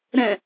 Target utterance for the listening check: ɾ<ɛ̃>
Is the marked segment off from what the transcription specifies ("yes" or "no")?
no